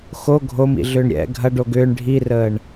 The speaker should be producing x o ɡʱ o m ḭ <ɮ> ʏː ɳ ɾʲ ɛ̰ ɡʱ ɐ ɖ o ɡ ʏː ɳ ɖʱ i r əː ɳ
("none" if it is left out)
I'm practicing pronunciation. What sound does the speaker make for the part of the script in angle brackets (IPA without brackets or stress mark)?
ɮ